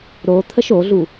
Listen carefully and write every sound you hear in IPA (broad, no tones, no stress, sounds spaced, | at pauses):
ɾ o t̪ʰ ə ʃ o ɮ u